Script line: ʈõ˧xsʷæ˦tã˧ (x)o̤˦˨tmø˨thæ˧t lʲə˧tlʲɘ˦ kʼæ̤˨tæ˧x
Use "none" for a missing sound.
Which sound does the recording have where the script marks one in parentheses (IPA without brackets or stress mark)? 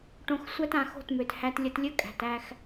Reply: x